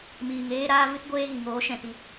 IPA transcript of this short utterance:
miː˨ŋeː˧ ɾaː˦vɨ˦tɡʷeː˦ɣi˨ ŋoː˨˦ʃɛ̃˨ti˨

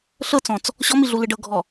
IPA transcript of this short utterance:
ɬɤt͡sɔ̃t͡s | ɕɔmiɮulɯɖ ɤɡʱɔ

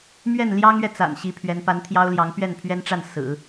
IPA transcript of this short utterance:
mɥɛ˥˩nljɑ˥ŋɥɛ˨ t͡sa̰˨˩n ɕi˧˥pʰɥɛ˧˥n pa˧˥nt̪ʰjɑ˥ʊ̯ljɑ˧˥ŋ pɥɛ˥˩npʰɥɛ˥nʈ͡ʂa˥˩n sɹ̩˨˩˦

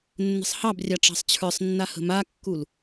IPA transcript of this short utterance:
nːə̤sˤhɑbrʲɑ ʈ͡ʂɑ̤sˤt͡ɕʰə˞sˤnːa hə̤makːul

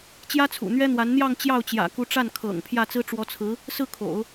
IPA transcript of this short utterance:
t͡ɕjä˥t͡sʰṵ˨˩n̪ɥɛ˥n̪wa˧˥n n̪jɑ˥˧ŋ t͡ɕjɑ˥˩ʊ̯t͡ɕjä̰˨˩ku˧˥ ʈ͡ʂa˥˩nkʰɤ̰˨˩ŋ pʰjä˥˩t͡sɹ̩˥ ʈ͡ʂwɔ˧˥t͡sʰɹ̩˧˥ | sɹ̩˥˩kʰo̰˨˩˦ʊ̯

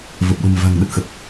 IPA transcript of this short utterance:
və˨˩p̚ɗə̤˨˩mva̤˨˩ŋ ɗə˦˥t̚xə˨˩p̚

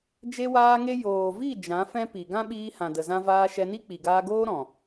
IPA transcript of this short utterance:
d͡ʒe˧waː˧ŋe˧ joː˨vi˦˨ d͡ʒã˨˦fɛ̃˦ pi˨ ɡã˦ɓiː˧hã˨də˨ zã˧vaː˧ʃɛ˧ni˦ k͡pi˨ɡaː˧ɡoː˦ ɾɔ̃˨

